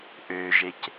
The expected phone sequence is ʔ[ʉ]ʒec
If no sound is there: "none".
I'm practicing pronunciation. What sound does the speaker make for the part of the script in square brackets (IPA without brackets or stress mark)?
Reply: ø